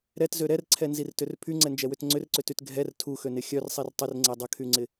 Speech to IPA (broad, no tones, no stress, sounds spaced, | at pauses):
ɾ ɛ t z ø ɾ ɛ r ǀʰ ɛ n z i r t ʏ r pʰ y ŋ͡ǀ ɛ n d͡ʒ ɛ w ʏ t ŋ͡ǀ ʏ r ǀ ʏ t y t ɡʱ ɛ r tʰ u x ø n ɪ xʲ œ r sˤ i r tˤ ɪ r ŋ͡ǀ ɛ dˤ ə kʰ y ŋ͡ǀ ɪ